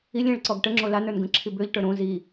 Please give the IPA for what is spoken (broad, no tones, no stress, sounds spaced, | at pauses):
i lʲ ẽ ɭ ǀ ɔ ɡ ʈ ə ŋ͡ǁ o l a n ə˞ n ɡ ə̃ ǁʰ i b ø ʎ ʈ ə˞ ɾ õ z i